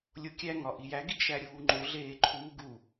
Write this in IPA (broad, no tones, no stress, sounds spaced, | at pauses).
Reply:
lʲ o kʲ æ ŋ ɒ ʔ i j æ ɡ i ɡ ʃ æ ɾʲ uː ŋ͡ǃ o ɮ eː ǃʰ uː ɡ u